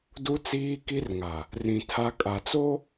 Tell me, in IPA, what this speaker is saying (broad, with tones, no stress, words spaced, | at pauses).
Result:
du˦ t͡siː˦ki˦rŋa˨ | rĩ˨ tʰa˦ kʼa˨t͡so˦